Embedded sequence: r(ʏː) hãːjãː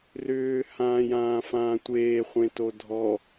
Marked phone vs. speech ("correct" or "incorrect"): correct